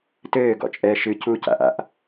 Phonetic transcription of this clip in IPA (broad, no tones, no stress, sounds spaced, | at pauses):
t ɘː ɡ ɔ̰ t͡ʃʼ ɛː ʃ ɨ c u c a̰ ʔ a̰ ʔ